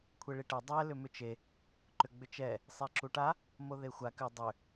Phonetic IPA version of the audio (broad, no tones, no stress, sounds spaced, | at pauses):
kʷʰ e ɭ i ʈ ɛ dˤ ɛ l ʏ m ʏ t͡ʃ e | ǃ ʏ ɡ͡b ʏ t͡ʃ ɛ | sˤ e ǁ u ʈ a | m o ð e xʷ a k ʏ dˤ ʏ